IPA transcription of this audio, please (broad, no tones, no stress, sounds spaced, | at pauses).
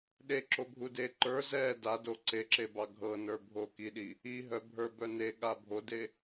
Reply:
ɗ e ǁ o bʱ u d e ǃ ə˞ z ɛ d a d o ǀ e ǁ e b ɑ ɡʱ ɤ n ə˞ bʱ o k i ɗ i | i ɦ œ bʱ ə˞ b œ n e ɠ a bʱ o d e